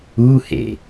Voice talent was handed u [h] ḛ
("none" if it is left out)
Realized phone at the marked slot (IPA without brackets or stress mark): h